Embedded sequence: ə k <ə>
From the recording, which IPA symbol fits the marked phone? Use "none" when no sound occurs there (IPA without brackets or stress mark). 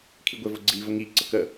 ə